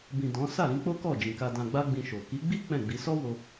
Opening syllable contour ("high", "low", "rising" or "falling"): low